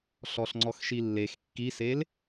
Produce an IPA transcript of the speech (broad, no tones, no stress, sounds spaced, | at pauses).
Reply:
ɬ ɔ ɬ ŋ͡ǀ ɔ x ʃ i lː e x kː i s e l